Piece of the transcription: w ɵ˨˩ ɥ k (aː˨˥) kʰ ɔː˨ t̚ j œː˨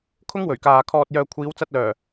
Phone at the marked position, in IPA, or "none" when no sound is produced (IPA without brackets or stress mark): aː˨